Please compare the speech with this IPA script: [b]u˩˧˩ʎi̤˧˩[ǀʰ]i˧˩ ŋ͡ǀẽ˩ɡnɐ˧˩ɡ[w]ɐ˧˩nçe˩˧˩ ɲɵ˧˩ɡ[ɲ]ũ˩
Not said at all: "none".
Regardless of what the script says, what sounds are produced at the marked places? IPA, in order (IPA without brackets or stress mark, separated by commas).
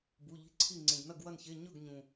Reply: b, ǀʰ, w, ɲ